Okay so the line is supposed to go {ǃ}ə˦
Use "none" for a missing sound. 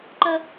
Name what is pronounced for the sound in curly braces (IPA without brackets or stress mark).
ǃ